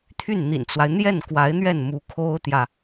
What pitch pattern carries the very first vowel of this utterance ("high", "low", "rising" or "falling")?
falling